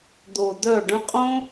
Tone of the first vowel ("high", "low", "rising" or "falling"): low